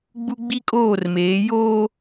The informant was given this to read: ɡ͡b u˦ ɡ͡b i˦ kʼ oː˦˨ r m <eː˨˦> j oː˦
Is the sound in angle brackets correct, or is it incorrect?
correct